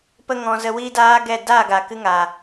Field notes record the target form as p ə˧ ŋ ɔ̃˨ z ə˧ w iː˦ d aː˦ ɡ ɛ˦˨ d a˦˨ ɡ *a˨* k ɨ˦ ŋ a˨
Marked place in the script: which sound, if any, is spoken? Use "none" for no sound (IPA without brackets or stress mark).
a˨